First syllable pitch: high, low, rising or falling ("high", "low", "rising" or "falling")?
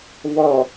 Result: low